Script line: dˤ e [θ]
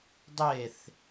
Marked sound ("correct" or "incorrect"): correct